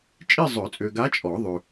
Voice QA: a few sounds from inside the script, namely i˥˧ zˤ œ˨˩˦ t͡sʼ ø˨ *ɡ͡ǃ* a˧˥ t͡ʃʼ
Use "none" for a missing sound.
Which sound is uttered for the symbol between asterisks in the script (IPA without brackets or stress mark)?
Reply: ɡ